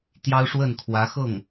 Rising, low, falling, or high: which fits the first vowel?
high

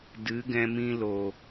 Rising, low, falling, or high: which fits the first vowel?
rising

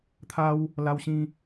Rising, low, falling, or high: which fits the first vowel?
high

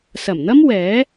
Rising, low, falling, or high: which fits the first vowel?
low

